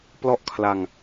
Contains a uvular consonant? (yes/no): no